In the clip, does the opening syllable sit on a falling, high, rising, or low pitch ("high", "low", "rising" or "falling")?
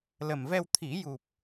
low